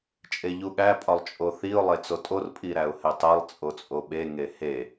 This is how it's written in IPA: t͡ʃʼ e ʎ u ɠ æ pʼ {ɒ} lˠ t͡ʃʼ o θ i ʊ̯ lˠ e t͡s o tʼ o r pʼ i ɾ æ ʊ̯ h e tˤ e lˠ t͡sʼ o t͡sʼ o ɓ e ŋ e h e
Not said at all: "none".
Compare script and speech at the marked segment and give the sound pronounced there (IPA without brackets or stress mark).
ɒ